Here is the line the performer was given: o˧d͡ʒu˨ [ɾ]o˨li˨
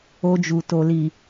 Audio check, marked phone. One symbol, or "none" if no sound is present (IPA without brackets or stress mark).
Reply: t